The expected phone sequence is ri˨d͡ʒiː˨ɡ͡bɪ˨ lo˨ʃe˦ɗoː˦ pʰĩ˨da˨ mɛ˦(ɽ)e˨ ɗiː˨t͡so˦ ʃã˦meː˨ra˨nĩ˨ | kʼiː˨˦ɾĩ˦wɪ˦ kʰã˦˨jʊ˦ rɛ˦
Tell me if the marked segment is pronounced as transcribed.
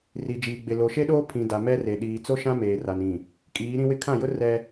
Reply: no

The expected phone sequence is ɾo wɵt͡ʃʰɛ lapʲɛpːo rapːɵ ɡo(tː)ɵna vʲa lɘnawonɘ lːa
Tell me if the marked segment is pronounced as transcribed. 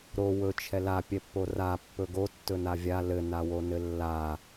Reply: yes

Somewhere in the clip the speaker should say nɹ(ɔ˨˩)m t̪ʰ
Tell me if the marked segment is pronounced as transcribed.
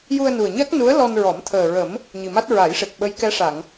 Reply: no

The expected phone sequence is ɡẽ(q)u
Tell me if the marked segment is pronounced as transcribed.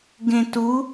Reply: no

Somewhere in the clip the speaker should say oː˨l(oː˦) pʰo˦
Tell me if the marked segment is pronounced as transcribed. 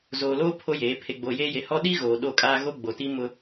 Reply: yes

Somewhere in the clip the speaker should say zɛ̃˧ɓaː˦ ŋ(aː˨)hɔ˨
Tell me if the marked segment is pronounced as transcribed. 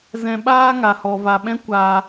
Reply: no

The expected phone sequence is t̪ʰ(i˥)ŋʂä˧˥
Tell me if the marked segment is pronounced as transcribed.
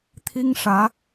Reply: yes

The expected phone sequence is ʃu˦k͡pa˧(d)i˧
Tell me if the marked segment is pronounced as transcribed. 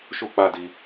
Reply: yes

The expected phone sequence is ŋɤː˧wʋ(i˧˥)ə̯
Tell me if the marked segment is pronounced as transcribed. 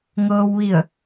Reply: no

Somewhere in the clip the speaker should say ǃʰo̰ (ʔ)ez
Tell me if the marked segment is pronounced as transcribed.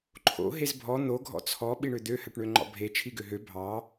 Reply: no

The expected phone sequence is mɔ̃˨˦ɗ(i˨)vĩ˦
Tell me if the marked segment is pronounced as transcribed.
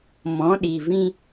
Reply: yes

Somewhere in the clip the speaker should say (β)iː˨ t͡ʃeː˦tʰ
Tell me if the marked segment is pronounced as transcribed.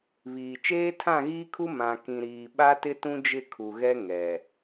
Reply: yes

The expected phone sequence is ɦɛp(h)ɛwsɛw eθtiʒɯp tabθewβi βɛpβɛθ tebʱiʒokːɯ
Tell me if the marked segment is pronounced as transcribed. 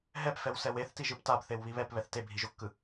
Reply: no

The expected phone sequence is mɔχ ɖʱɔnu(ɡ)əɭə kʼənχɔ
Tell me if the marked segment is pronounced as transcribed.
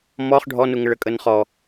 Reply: no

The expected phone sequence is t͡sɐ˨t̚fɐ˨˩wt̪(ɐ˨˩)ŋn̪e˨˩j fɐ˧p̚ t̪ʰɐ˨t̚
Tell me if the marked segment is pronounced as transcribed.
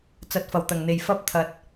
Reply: yes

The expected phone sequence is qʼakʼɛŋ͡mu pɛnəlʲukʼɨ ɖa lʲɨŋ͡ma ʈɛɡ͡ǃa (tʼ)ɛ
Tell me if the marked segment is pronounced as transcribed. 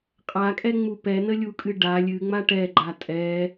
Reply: yes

